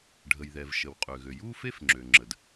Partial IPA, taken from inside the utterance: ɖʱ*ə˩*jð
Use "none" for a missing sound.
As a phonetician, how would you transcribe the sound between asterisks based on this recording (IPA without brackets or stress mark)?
ə˩